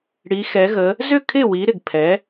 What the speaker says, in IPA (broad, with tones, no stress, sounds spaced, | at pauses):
ɽ i˩˧ x ɛ˩˧ ɣ ə˩˧ | z ʏ˥˩ kʰ ɪ˥˩ w i˩˧ ɾ ɪ˩ ɡ pʰ ɛ˩˧